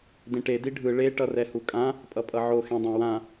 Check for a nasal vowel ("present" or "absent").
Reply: present